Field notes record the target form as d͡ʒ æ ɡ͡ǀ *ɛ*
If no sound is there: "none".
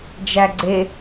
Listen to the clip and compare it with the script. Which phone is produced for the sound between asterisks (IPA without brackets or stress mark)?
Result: e